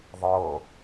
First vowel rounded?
no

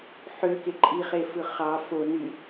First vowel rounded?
yes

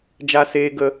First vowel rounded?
no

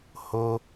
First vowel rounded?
yes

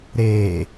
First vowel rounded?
no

